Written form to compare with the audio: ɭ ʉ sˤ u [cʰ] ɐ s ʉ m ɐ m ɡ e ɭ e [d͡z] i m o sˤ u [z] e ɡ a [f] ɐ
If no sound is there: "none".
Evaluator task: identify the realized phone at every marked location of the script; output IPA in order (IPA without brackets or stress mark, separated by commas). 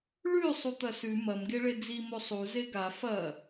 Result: t̪, d͡z, z, f